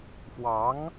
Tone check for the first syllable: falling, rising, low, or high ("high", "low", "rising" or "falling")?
rising